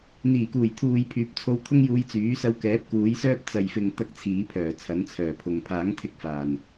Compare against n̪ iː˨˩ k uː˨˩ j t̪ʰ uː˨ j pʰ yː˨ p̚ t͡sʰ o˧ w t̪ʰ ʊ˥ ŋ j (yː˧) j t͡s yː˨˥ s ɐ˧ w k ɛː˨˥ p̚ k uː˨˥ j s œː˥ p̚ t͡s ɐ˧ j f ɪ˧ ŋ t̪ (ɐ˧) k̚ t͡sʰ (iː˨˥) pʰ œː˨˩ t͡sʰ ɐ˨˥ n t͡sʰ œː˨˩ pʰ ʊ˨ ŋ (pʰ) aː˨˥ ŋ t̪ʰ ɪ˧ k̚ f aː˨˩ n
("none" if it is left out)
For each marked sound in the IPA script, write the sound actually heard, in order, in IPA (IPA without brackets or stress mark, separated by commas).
uː˧, ɐ˧, iː˨˥, pʰ